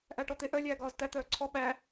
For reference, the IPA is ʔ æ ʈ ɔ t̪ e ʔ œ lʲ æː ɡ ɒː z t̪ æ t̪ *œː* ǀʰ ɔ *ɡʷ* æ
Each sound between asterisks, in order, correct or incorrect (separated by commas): correct, incorrect